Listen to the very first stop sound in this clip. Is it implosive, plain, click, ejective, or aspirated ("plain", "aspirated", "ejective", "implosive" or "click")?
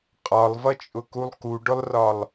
ejective